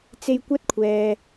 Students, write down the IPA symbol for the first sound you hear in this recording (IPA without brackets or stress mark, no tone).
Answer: t͡s